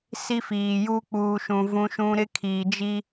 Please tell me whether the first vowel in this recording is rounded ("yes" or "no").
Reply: no